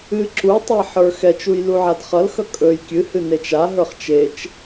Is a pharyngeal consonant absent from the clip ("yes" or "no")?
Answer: no